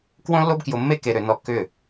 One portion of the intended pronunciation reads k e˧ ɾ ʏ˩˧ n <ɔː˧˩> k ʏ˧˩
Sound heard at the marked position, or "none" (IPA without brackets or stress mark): ɔ˧˩